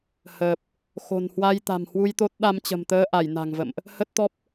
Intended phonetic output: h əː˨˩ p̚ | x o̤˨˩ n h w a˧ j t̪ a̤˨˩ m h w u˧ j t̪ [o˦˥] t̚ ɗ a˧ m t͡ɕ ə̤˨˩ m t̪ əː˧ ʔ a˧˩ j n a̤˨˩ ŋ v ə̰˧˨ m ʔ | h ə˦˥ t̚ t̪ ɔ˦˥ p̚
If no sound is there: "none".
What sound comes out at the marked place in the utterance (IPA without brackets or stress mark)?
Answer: o˦˥